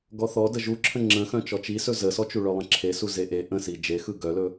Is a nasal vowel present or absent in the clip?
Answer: present